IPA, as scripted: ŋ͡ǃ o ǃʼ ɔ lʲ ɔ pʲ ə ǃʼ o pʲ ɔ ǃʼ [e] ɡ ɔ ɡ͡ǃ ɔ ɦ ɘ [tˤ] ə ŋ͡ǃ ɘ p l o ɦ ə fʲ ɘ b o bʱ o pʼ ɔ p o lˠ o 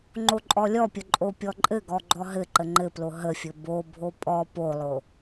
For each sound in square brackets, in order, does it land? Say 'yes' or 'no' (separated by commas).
no, no